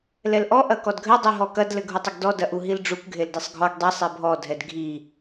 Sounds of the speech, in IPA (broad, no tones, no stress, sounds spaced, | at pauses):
l ɛ l ʔ ɔ ʔ ɐ k ɔ d ɡʱ ɘ dˤ i ɦ ɔ k ɐ d l ɘ ɡʱ u tˤ ɘ ɡ d ɔ d ɐ ʔ u ɦ i l ɖ͡ʐ u k ɡʱ e l d e sˤ ɡʱ ɔ ɡ dˤ e sˤ e bʱ ɔ dʱ ɛ d ɡʱ i